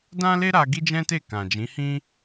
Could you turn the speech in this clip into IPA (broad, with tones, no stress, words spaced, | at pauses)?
dã˦le˦ɾa˧ ɡi˦d͡ʒɛ̃˦te˦˨ kã˨d͡ʒĩ˨˦hĩ˦